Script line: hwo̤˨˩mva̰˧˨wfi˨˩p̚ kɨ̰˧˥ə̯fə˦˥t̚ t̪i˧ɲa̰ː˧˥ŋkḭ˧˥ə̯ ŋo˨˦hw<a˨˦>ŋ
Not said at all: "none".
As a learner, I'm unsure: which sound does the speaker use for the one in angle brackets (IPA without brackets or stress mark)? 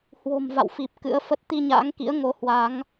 a˨˦